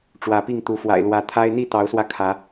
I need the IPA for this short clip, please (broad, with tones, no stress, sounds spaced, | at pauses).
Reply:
ʈ͡ʂ w ä˨˦ p i˥˨ ŋ t̪ u˨˦ f w a̰˨˩ ɪ̯ l w ä˨˦ t̪ʰ a˦ ɪ̯ n̪ i˥˨ t̪ ɑ˨˦ ʊ̯ s w ä˧ kʰ ä˨˦